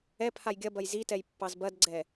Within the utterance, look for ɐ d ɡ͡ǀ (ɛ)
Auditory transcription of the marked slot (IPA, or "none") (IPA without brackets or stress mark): ɛ